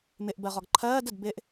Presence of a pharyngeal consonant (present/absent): absent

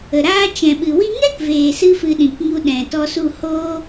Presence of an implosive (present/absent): present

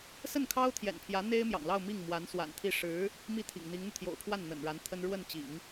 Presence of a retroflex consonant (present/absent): present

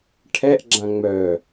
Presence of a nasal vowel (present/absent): present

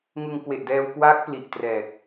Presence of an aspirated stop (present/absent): absent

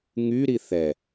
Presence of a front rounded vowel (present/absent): present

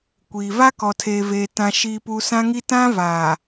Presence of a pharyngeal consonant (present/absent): absent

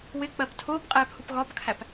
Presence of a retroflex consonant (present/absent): absent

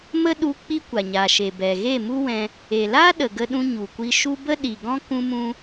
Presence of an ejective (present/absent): absent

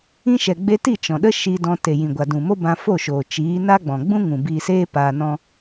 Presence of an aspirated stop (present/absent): absent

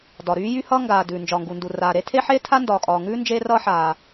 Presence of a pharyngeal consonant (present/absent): present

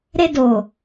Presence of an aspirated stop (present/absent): absent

